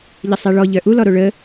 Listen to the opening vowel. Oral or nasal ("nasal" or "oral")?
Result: oral